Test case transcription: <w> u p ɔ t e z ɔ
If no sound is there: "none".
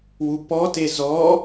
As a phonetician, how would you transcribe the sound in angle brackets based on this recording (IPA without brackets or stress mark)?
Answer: w